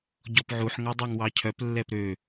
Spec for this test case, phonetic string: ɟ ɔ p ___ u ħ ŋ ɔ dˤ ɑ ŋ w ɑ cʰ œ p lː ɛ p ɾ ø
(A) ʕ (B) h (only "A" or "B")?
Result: A